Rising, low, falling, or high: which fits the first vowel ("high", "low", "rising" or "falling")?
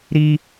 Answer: high